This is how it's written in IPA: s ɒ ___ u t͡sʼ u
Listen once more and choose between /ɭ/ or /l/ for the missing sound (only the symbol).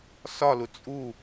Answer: l